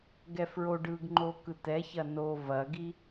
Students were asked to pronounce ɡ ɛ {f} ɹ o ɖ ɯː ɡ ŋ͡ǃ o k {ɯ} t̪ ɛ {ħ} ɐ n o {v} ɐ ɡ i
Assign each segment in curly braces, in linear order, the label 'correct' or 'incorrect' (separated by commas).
correct, correct, incorrect, correct